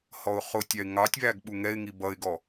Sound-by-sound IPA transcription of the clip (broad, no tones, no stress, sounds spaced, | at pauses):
h ɔ ʊ̯ χ ʊ tʲ ɑ ɪ̯ ŋ ɑ tʲ β æ ɡ ɓ u ŋ ɛ ɪ̯ ŋ i b ʌ ɪ̯ ɡ ɔ